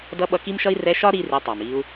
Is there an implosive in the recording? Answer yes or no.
yes